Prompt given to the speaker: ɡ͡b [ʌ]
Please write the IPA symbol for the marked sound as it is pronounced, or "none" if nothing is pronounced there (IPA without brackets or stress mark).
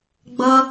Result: ʌ